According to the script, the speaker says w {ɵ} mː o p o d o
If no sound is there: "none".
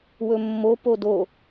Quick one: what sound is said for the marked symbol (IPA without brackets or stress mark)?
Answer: ɵ